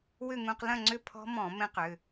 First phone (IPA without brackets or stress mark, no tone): w